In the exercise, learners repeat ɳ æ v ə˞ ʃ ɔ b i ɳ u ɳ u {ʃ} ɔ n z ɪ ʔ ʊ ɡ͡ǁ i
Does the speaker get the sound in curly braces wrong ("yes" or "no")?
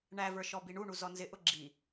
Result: yes